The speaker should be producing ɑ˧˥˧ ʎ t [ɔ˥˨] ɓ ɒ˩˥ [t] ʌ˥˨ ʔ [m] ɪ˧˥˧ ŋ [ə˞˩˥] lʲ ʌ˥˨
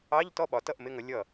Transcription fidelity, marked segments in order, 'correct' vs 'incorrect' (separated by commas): correct, correct, correct, incorrect